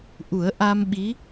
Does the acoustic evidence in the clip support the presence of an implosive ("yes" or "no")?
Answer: yes